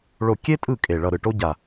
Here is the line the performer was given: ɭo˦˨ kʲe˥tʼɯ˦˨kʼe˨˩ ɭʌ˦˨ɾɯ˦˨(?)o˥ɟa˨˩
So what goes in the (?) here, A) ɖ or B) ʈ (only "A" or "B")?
B